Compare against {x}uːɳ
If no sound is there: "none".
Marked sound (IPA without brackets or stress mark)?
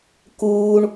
k